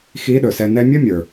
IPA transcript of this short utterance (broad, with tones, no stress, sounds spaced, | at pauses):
x i˧˥ ɗ ɵ˩ s ɛ˧ n ɛ˥ mʲ ɵ˥ mʲ ə˞˩